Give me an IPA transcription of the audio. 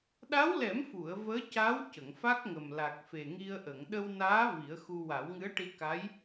ɗ a˧˥ w l ɛ˨˩˦ m f u˨˩˨ ə̯ v əː˧˥ c a˧˥ w c ə˨˩˨ ŋ f a˦˥ k̚ ŋ ə˨˩ m l a˨˩ k̚ f e˨˩ ŋ i˧ ə̯ ʔ ə˨˩˨ ŋ ɗ ə˧ w n aː˧˥ v i˨˩˦ ə̯ x u˧ w a˨˩˦ w ŋ ɨ˧˥ ə̯ ʈ i˧ k a˧˥ j

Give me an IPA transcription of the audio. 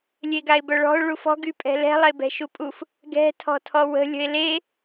lʲ e ɡ a ɪ̯ b œ ɭ ɔ̤ ʊ̯ ɭ u f ɔ̤ ɡ y pʼ ɛ̤ l ɛ̤ lˠ e b ɛ̤ ʃ u pʼ u f | ɡ ɛ̤ tʰ ɔ̤ tʰ ɔ w ə̤ lʲ ə̤ ɪ̯ l e

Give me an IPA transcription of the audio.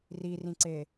r i r ĩ ǀ e

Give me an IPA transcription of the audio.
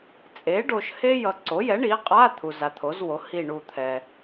t͡sʼ e˩˥ ɖ o˨ ʃ h e˥ j ʌ˨ ǀ o˩˥ j ɛ˩˥ ɳ i˩˥ qʼ a˧˥˧ t̪ʰ u˨ z a˨ t̪ʰ o˩˥ z w o˩˥ h i˦˨ ɳ u˦˨ t̪ʰ ɛ˨

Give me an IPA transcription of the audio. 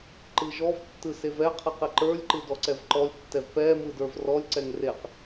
ǃ ɯ ʒ ɔ v tː ɯ s e v ɛ qʰ ɯ q e ǃ ə˞ lʲ ǃ ɯ d ɔ ǀ ɛ v ǃ ɔ lʲ tː ɛ v p ɛ m ɯ d ə˞ v r ɔ lʲ ǀ ɛ ŋ r e q

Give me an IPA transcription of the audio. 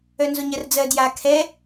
œ n z o ɲ ɜ r d͡z ɜ d j a kʰ ɛ

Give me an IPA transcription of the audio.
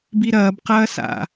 b i ɾ ɐː b q ɐː s a̰

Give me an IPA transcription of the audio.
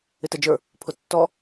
ɪ t æ d͡ʒ ə˞ | pʰ ʊ tː ɔ

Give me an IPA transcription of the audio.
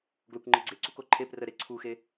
ɡ l o kʷ ŋ͡ǃ i ɡ͡ǀ e ǀ u k o ǃʰ e p r ə ɾ e ǀʰ u x e

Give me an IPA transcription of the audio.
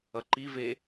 ʌ ǃ i v e

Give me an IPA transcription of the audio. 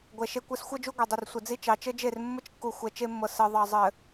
ɡʷ ɛ˨ ʃ e˦ kʷ ɘ˦ s xʷ ɤ˦ d͡ʒ u˦ ɡʷ e˨ dˤ ɘ˨ r sʷ ɘ˨ d͡z i˦ t͡ʃ ɑ˨ t͡ʃ ɘ˦ d͡ʒ e˦˨ r mː ɘ˦ t͡ʃ kː u˨ xʷ ɛ˨ t͡ʃ e˦ mː ɤ˨ s ɘ˨ ðˤ ɑ˨ zˤ ɘ˨

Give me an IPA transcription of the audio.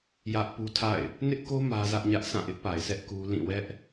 j ä˦ ʔ p u˦ tʰ a̰˦˨ ɪ̯ | n ɪ˦ ʔ k o˦ m ä˦ z ä˦ ʔ ɲ ä˦ ʔ sʰ ã˦˨ ʔ ɪ˦ ʔ p a˨ ɪ̯ sʰ ɛ˦ ʔ k u˦ l ĩ˦˨ w ɛ˦ ʔ

